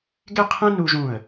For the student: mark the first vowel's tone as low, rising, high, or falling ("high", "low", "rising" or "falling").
falling